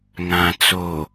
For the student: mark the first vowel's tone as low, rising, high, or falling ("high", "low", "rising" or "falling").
low